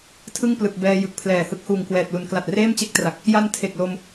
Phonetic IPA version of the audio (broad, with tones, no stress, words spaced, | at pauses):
tʰɯ˥˩ŋplɯ˨˩k̚bɛː˧ jɯ˨˩k̚pʰlɛː˨˩hɯ˦˥k̚ huː˨˩ŋkwɛː˨˩t̚lu˨˩n kla˨˩t̚reː˥˩mt͡ɕe˥˩k̚tra˨˩k̚ | ja˧n tʰe˨˩k̚lo˧m